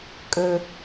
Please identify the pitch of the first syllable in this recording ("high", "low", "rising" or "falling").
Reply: low